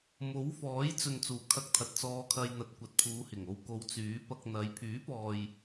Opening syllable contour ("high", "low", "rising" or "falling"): rising